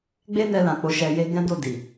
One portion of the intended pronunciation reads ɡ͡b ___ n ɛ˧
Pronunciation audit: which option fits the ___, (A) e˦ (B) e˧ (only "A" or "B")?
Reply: A